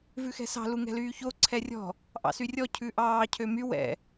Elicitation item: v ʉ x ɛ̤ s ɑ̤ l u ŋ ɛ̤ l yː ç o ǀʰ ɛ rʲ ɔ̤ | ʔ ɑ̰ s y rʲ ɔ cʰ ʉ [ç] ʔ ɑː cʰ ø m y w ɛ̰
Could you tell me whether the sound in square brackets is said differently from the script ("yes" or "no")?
yes